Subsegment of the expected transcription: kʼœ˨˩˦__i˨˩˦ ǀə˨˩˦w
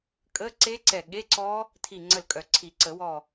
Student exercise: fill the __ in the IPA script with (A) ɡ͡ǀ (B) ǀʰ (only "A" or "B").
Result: B